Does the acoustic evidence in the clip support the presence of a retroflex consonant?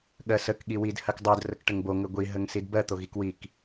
yes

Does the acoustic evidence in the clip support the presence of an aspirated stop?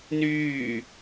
no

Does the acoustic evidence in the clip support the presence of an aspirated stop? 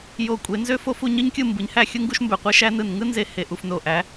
no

